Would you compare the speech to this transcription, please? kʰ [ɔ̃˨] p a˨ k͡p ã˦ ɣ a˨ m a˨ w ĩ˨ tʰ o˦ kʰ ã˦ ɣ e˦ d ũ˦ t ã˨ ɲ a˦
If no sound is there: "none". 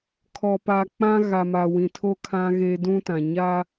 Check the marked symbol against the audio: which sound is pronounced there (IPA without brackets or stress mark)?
ɔ˨